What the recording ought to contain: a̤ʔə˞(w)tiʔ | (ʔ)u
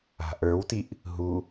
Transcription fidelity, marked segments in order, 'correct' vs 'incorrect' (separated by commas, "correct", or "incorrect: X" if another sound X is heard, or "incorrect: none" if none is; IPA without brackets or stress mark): correct, incorrect: ɦ